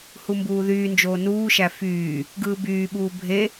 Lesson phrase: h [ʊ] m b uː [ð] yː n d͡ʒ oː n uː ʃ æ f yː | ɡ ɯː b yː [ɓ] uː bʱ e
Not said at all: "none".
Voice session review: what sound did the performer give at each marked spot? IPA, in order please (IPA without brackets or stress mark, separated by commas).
u, ð, ɓ